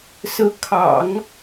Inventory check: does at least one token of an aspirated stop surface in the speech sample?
yes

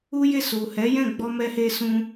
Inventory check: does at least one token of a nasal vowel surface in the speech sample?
yes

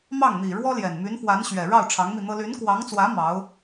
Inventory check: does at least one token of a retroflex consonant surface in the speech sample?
yes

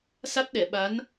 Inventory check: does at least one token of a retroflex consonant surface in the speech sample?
no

